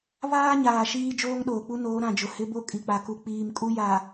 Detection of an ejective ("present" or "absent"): present